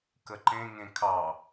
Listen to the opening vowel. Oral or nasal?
oral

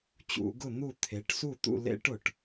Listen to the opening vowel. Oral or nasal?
oral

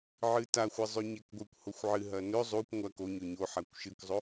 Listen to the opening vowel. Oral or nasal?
oral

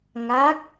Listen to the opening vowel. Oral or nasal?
oral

